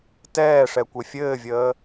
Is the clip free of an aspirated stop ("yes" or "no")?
yes